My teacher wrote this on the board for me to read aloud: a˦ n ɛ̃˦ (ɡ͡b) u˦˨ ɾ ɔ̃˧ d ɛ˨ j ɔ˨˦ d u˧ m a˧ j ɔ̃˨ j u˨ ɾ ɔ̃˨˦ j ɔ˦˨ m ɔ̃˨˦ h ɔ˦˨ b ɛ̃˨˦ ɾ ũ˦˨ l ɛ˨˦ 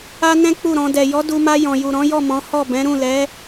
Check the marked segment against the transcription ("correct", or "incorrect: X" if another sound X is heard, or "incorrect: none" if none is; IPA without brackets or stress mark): incorrect: k͡p